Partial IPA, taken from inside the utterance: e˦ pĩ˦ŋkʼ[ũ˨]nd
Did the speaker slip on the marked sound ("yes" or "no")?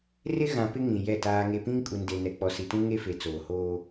yes